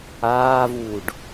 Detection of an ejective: absent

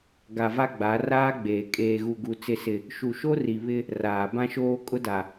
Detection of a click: absent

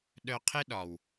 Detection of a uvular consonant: present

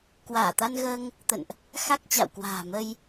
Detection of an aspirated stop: absent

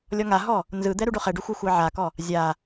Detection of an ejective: absent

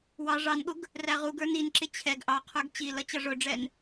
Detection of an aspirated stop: present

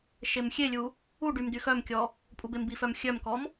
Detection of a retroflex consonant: present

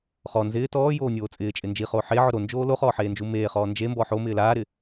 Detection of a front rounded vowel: absent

